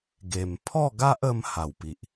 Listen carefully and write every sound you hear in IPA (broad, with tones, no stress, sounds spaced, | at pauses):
ɡ e˨˩ m pʰ ɔ˥˧ ɡ a˦ ʔ ə˧ m h a˨˩ w p i˨ ʔ